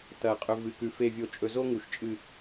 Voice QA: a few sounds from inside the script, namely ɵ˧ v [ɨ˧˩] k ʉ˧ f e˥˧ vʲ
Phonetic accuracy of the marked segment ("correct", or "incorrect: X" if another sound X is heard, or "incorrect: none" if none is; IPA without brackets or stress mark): correct